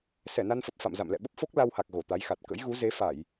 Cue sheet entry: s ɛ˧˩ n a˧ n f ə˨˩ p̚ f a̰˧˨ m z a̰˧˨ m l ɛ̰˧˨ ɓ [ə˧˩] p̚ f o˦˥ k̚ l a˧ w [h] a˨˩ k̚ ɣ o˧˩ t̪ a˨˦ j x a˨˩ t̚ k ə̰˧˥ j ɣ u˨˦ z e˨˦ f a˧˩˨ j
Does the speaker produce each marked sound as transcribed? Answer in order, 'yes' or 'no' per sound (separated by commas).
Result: no, yes